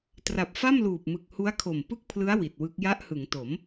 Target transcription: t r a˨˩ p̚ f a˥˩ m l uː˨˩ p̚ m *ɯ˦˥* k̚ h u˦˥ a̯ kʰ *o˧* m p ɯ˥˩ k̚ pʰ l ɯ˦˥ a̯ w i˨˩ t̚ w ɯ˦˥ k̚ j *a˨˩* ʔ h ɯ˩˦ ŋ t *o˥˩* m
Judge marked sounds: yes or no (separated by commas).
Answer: no, no, no, no